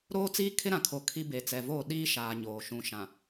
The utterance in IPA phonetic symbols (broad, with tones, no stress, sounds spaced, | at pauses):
ɾ oː˦ t͡s iː˦ kʰ ɪ˦ ɾ ã˨ kʰ o˨ kʰ i˦ b e˨ t͡s ɛ˨ v oː˦˨ ɗ iː˦ ʃ aː˨ ɲ oː˨ ʃ ũ˨ ʃ ã˨